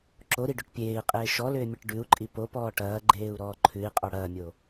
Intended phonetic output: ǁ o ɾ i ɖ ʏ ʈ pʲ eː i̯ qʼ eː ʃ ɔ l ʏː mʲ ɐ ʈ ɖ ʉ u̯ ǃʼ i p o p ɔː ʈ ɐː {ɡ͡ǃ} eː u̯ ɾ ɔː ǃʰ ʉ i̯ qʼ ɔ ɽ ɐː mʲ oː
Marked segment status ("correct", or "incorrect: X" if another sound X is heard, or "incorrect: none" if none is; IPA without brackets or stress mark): correct